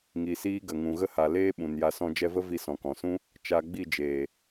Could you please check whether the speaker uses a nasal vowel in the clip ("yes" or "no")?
yes